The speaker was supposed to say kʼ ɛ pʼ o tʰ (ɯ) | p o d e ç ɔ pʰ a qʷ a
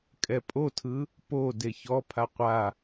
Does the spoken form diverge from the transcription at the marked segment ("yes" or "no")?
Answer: no